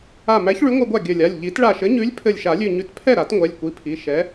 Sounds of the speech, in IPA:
a˧˩mæ˨˥ç ɭʉ˨˥ŋʷæ˧ɡʷa˥˩ ɡʲɘ˧˩lʲa˩˧˩lʲ ʎi˨˩˦tɭa˧˩ʃɘ˨˥ɲʉ˨˥lʲ pʰɘ˧˩lʲʃa˨˩˦lʲʉ˧˩ɲʉ˧˩t pʰɛ˥˩ɾa˨˩˦t ŋʷɛ˩˧˩lʲkʷi˨˥pʰi˩˧˩ ʃɛ˨˥

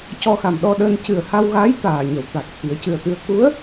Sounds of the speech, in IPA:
cɔ˧xa˨˩mɗɔ˧ɗəː˧n cɨ˨˩ə̯ha˧wɣaː˧˥j t̪aː˨˩ɲə˨˩˨wt̪a˨˩k̚ t̪ʰi˨˩˦ə̯cɨ˨˩ə̯t̪ɨ˧ə̯ ku˧˥ə̯

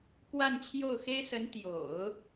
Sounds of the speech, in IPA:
kwa˥˧nt͡ɕʰjo˥˩ʊ̯xe˥ɪ̯sə˧˥n t̪jo̰˨˩˦ʊ̯

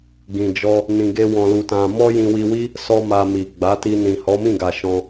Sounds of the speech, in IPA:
ɡĩ˨d͡ʒɔ˧ | nĩ˧ɡe˦ wɔ̃˧lu˧tã˧ mɔ˦jĩ˧wi˧wi˦ | sɔ˦ma˧mi˨ ɡ͡ba˨˦ti˧nĩ˨ hɔ˨˦mĩ˦˨ɡa˨ ʃɔ̃˧

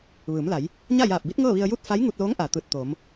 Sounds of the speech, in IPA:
ʋɯː˩˧mla˩˧j | ɲa˥˨jaː˧˩p̚bi˧˥t̚ ŋɤː˥˨ʋi˧ə̯ju˥˨t̚ fa˧˥j ŋu˧t̚loː˧˥ŋʔaː˩ t̪ɯː˧˩t̚ t̪oː˩˧m

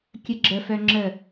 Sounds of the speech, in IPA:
kʲəɡ͡ǁəfœ ŋ͡ǁə

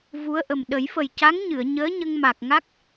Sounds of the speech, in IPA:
vu˧˥ə̯ʔə˨˩m ɗə˨˩˦jfə˨˩jca˧˥ŋɲɨ˨˩˨ə̯ ɲəː˧˥ ɲə˧ŋma˨˩k̚ŋa˦˥k̚

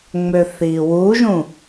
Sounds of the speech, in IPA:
ŋ͡møθiwuʒũ

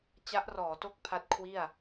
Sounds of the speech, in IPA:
t͡ɕa˦˥ʔrɔː˩˦to˥˩k̚ pʰa˦˥t̚kʰwi˥˩a̯

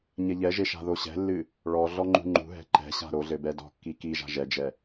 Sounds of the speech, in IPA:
ɲɛʎɛʒe ʃa̤ðoɕɛ̤lːɨ | ɭɔ ɮɔŋ͡ǃṳŋ͡ǃṳɦɛ̤ ǃɛ̤ɕa̤ ɾoɮɘ bɛdɔ̤kːi kiʒa̤ ʒɛd͡ʒɛ

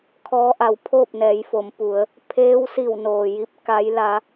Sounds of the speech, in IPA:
kʰɔː˧˥ ʔa˩wpʰoː˥˨p̚nɛː˩˧jfo˩˧m pu˩˧ə̯ | pʰeː˧˥wsi˧˩wnoː˩ji˧p̚ ka˧˥jla˧˥

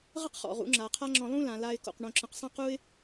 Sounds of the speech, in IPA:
ʁə˦qχɔ̰˨ʁṵ˨˦ŋ͡ǁa˨ qʰa˦ŋ͡ǁɔ̃˧ lˠũ˦lã˨ la˧ɪ̯ko̰˨q ɳõ˨ǁə̃˨qsˤã˦q u˦ɪ̯

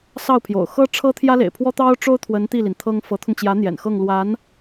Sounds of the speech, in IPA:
sɑ˥˩ʊ̯pʰjo̰˨˩ʊ̯ xɤ˥ʈ͡ʂʰɤ˥ t̪ʰjä˥lḛ˨˩ɪ̯pʰwɔ˥ t̪ɑ˥ʊ̯ ʈ͡ʂo˥ʊ̯t̪ʰwə˧˥n t̪i˥˩li˩n t̪ʰɤ˥ŋ fɤ˧˥t̪ʰʊ˧ŋt͡ɕjä˧˥n̪jɛ̰˨˩n xɤ˥˩ŋlwa˧˥n

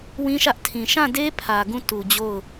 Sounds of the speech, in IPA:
wĩ˦ʃä˦ʔtʰĩ˨ ʃã˦˨de˦ pʰä˨ɡũ˦˨ tu˨d͡ʑo˦˨ʊ̯

